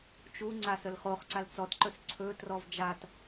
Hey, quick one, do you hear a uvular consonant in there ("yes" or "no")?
yes